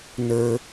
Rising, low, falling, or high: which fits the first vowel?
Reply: low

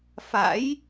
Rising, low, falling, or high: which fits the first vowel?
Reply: rising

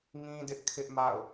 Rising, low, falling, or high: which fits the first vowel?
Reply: high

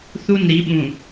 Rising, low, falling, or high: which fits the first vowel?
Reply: falling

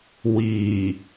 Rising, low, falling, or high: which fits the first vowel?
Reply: low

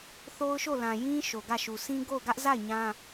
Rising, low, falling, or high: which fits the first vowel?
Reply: high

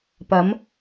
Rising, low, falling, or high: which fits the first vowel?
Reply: rising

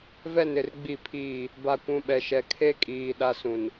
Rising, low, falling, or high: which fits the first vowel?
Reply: falling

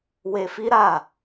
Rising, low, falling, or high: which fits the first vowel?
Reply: low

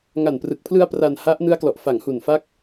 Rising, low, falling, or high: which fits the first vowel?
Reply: low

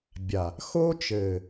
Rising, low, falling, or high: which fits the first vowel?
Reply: low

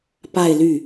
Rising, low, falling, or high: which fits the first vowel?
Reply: falling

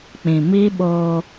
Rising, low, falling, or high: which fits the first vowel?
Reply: low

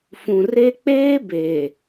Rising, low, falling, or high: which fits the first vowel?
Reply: low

